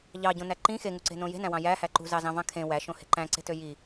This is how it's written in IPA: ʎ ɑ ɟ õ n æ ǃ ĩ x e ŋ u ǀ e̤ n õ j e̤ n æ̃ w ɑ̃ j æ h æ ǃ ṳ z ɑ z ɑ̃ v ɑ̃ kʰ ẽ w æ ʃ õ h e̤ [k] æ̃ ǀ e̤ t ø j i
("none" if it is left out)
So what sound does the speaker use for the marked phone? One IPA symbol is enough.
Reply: ǃ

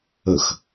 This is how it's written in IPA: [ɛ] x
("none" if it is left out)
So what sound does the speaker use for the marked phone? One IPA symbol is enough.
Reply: ə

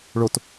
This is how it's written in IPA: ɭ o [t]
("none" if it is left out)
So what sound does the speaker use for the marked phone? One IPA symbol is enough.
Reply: t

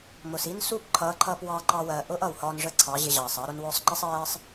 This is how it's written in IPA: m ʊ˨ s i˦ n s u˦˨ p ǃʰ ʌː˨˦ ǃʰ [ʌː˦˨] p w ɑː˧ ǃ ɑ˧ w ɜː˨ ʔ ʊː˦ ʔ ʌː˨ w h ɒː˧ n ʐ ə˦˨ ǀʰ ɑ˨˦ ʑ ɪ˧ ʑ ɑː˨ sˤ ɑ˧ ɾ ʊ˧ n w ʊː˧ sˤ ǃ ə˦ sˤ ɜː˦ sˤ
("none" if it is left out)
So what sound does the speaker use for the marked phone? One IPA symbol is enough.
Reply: ʌː˧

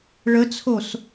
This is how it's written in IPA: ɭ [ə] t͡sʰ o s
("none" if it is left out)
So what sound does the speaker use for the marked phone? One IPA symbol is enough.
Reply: ə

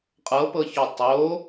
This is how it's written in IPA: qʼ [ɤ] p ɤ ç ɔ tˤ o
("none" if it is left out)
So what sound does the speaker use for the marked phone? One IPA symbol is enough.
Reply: ɤ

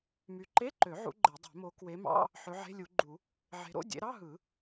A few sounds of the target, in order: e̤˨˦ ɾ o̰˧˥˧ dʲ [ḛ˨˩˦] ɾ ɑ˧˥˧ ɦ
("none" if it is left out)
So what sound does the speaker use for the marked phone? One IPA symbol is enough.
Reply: ḛ˨˦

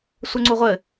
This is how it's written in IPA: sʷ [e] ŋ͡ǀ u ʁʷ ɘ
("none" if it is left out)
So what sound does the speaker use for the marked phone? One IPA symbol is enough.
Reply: ɘ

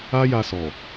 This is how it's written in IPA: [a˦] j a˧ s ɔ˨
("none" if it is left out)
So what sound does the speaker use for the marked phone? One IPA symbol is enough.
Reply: a˦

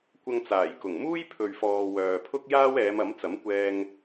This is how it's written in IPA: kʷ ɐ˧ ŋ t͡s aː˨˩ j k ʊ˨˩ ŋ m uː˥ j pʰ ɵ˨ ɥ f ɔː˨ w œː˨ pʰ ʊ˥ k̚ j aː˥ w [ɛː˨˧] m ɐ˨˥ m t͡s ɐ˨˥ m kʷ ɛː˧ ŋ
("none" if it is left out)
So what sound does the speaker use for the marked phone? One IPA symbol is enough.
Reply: ɛː˨˧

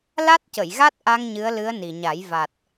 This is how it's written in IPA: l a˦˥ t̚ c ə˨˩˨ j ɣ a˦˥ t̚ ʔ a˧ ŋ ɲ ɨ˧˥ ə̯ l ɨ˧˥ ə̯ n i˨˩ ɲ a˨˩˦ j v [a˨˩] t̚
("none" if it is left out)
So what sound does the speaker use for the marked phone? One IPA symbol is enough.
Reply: a˨˩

